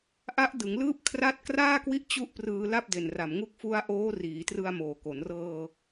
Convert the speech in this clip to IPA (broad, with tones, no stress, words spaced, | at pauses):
ʔa˦˥ʔdɯ˩˦ŋlɯː˥˩p̚ kʰra˦˥t̚kraː˥˩kwi˦˥ʔ t͡ɕu˥˩ʔprɯː˧ la˥˩p̚de˨˩n ra˨˩mŋu˦˥k̚ fu˦˥a̯ʔoː˦˥riː˩˦ trɯ˧a̯moː˨˩ko˩˦nrɤː˧